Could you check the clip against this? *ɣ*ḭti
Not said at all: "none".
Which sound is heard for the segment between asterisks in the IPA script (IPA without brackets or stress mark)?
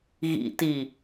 ɣ